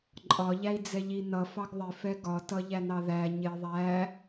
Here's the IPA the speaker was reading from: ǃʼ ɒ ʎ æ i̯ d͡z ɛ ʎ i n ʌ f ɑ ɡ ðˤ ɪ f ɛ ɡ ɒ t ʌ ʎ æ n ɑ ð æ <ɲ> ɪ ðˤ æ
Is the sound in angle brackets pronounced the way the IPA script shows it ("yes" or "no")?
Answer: yes